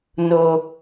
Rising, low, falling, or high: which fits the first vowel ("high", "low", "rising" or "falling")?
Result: low